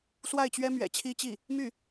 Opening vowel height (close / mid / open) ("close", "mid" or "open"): open